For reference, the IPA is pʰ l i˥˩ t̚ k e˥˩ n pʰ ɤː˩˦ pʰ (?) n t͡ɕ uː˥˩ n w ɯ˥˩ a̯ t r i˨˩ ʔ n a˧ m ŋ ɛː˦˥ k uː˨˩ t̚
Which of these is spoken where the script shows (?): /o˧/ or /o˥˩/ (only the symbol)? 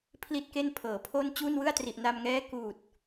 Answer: o˥˩